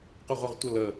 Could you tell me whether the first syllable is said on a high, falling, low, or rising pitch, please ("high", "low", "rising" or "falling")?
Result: falling